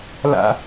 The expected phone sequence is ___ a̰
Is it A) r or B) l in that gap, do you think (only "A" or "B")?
B